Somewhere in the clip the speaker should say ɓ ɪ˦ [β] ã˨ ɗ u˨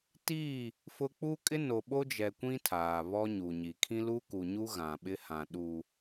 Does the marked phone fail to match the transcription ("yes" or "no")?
yes